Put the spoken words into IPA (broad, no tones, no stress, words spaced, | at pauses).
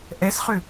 ʔɛsχʏ